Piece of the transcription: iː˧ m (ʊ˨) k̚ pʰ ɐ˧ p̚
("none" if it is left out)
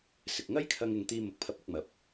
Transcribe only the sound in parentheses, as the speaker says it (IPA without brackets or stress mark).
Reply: ʊ˨